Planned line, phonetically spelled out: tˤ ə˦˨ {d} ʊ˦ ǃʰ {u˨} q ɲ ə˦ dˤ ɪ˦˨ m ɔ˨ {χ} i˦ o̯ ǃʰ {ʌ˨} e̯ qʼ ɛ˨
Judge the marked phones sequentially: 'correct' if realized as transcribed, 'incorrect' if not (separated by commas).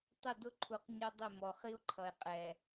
correct, correct, correct, correct